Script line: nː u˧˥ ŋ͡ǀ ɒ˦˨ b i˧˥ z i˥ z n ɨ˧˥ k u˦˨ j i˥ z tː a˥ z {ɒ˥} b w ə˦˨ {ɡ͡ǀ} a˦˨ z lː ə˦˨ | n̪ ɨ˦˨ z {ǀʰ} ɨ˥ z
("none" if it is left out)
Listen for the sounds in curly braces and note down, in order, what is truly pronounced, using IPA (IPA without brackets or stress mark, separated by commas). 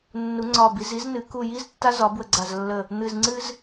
ɒ˧˥, ɡ͡ǀ, ŋ͡ǀ